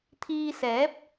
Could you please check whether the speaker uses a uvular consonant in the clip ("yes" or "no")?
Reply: no